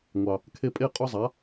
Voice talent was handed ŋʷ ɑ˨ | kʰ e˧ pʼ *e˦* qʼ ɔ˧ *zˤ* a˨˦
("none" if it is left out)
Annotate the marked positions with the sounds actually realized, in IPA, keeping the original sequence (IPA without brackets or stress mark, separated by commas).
e˦˨, zˤ